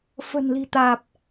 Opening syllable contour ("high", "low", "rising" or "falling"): low